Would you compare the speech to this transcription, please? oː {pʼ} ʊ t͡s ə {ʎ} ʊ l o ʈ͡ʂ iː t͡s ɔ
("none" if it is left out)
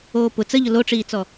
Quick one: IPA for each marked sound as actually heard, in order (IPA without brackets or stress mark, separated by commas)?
p, ʎ